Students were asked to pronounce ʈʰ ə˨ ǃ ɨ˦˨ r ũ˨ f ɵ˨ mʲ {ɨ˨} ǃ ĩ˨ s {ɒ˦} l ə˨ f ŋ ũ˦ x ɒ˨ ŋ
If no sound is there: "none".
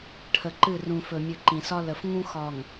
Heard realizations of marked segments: ɨ˨, ɒ˦

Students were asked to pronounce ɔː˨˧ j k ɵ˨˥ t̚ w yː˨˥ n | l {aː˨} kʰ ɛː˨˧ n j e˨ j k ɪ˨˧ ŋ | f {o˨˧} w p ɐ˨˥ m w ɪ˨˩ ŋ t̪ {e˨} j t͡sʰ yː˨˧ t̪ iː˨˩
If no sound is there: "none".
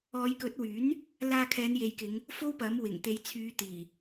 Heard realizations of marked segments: aː˧, o˥, e˨˧

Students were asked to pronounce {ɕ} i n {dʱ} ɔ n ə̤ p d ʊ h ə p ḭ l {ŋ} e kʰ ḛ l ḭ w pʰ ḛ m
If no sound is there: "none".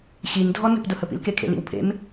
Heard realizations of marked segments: ɕ, dʱ, k

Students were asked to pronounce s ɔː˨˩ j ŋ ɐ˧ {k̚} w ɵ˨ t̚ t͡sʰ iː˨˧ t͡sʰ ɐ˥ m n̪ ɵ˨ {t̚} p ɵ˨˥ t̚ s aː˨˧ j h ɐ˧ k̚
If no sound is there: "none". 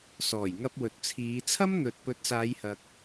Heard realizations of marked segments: p̚, t̚

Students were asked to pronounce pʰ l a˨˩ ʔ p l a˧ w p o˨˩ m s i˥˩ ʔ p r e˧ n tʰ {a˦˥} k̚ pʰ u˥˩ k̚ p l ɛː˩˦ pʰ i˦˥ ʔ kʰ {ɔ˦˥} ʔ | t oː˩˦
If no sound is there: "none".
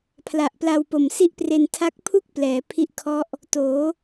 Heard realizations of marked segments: a˦˥, ɔ˦˥

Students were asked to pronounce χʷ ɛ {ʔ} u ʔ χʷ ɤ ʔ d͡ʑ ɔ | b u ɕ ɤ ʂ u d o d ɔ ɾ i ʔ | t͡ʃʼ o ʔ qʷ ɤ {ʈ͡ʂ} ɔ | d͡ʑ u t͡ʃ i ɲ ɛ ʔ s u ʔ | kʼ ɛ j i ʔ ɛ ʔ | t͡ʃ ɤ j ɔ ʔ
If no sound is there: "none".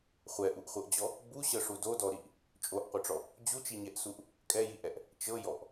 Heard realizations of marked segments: ʔ, ʈ͡ʂ

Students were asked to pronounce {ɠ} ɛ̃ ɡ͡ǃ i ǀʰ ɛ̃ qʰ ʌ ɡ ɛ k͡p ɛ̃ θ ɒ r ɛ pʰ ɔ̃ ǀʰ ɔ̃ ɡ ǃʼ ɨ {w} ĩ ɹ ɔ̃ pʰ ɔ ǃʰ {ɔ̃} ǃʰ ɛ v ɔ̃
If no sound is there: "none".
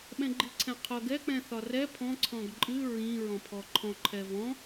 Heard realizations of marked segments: ɓ, ɹ, ɔ̃

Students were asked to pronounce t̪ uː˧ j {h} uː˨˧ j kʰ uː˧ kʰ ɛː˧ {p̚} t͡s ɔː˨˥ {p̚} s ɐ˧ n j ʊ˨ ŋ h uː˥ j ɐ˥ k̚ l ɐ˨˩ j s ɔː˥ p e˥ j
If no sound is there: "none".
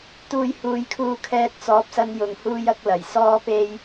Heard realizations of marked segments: h, t̚, p̚

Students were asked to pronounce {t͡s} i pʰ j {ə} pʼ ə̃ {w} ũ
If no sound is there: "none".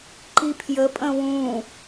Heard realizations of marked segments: ǃ, ə, w

